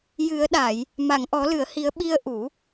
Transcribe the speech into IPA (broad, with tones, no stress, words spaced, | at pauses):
jɨ˨˩˦ə̯ɗa˨˩˨j | ma˨˩˨ŋʔɔ˨˩˦lɨ˨˩˨ə̯hi˨˩˦ə̯ ɓi˧ə̯ʔu˨˩˦